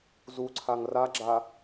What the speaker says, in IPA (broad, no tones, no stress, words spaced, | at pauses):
zuǀʰaŋ raɡ͡ǁa